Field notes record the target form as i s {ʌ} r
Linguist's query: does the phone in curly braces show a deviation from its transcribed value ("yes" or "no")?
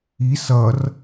no